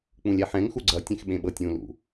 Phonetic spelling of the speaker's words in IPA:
k͡p ũ lʲ ɛ ħ ɛ̃ ŋ x u ɡ͡ǀ ʌ tʲ ɛ̃ x ɓ ẽ ɓ ɤ tʲ ũ l ṵ

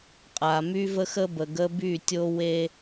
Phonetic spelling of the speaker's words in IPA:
qʼ a˨ m y˦ v ə˦ x ə˦ b ə˨ ɡ ə˦ b y˦˨ tʲ o˦ w e˦

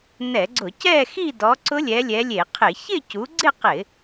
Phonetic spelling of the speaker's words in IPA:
n ɛ˧˩˧ ɡ͡ǀ ʊ˧˩˧ c ɛ˥˧ x i˥˧ d ɔ˨˦ ǀ ʊ˦˥ lʲ ɛ˨˦ lʲ ɛ˨˦ lʲ e˧˩˧ qʰ ɪ˧˩˧ ç ɪ˥˧ c u˨˦ ɡ͡ǀ ɪ˥˧ q ɪ˧˩˧

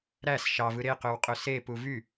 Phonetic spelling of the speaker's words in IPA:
ɾ æ s ʃ ɑ v ɯ ɾ e q ø w qʼ ø s e p u v y

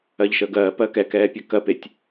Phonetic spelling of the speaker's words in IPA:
ɜ ʎ ʃ əː ɡ ɜː p ɜ k ɛ k ɛː pʲ ɛ k ɜ p e tʲ

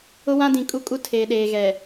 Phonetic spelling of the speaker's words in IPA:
ʊ˦ w ã˦ d ĩ˨ kʼ u˦ kʼ u˦ tʰ eː˨ ɗ eː˨ ɣ ɛ˨

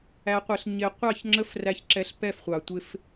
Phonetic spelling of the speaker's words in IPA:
æ˨ qʷ ɪ˨ ɬ ɲ ɪ˨ qʷ ɑ˦˨ ç ŋ͡ǁ ə˦ f r æ˦ ç ǁ ɛ˦ ɬ p ɛ˦˨ f χʷ ɑ˨ tʷ ɪ˦ f

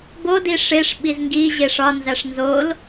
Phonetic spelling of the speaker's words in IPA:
b o d i ʂ e ʂ ɓ i z ŋ ɡ i ʑ e ʂ ɒ n z æ ʂ n z o l

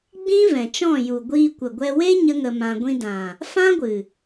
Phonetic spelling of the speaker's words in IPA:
ɡ͡b ĩ˦ v ɛ̃˨ t͡ʃ ɔ̃˦˨ j u˨ ɡʷ iː˧ kʷ ə˨ ɡʷ ɛ˧ w e˦ ɲ ə˦ ŋ ə˧ m ã˧ ɡʷ ĩ˧ d ã˨ | f ã˦ ɡʷ ɨ˨

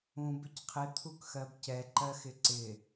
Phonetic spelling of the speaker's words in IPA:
ũ b ɪ c qʰ ɪ t̪ʰ u k x ɜ b c ɛ ǃ ɜ x ɪ ǀ ɪ

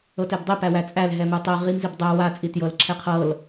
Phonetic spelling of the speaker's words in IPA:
ɤ t ɛ b dˤ i p æ w æ t͡sʼ æ l ɦ ɛ m ɯ tˤ ɛ ʁ i m z i b dˤ æ w a t͡sʼ i t j ɤ l ǁʰ ɛ qʰ ɤ l

